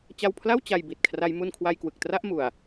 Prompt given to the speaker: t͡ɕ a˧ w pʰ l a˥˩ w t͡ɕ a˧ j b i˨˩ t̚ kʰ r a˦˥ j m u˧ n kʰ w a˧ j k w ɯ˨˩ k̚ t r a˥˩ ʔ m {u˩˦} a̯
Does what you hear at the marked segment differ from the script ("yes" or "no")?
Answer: yes